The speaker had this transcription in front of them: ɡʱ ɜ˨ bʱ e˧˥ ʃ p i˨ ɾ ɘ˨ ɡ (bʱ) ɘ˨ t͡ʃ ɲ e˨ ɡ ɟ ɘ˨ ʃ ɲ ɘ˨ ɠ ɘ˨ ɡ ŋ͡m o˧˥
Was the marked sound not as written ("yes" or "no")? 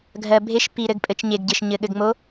yes